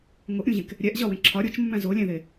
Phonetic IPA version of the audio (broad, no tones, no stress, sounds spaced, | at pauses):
ŋ o ʔ ɾʲ ũ ʑ ẽ k | ɾʲ æ ʔ ʑ ɒ w ẽ ǁʰ ɒ ɾʲ o t͡ʃ mː æ̃ z o lʲ æ̃ ð e